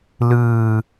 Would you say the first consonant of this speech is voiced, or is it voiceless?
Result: voiced